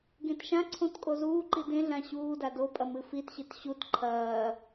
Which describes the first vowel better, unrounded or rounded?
unrounded